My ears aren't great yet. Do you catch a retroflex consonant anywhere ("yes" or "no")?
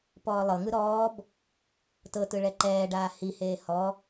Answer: yes